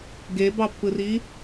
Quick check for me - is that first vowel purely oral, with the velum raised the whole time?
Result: yes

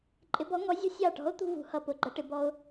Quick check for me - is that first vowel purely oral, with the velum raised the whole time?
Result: yes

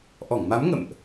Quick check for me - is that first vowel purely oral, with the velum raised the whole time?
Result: yes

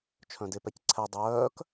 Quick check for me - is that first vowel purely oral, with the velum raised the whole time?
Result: no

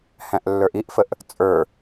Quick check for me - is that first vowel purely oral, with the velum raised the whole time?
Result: no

